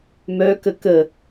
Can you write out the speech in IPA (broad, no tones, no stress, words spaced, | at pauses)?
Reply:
mœkə kə